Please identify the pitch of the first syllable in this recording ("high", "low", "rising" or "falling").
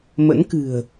rising